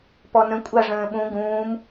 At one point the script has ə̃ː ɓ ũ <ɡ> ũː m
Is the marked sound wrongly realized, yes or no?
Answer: no